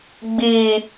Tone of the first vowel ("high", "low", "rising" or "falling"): low